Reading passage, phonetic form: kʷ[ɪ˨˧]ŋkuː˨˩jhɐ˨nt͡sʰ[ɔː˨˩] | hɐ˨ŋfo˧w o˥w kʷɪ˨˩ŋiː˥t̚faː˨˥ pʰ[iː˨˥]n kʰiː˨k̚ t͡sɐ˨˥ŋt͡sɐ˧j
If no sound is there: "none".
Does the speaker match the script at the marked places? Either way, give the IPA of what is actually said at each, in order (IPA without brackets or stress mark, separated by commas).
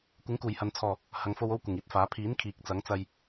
ɪ˨˥, ɔː˨˩, iː˨˥